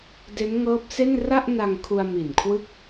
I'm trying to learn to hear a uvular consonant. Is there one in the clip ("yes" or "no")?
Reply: no